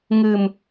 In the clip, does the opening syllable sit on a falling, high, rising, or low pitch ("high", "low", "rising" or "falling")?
low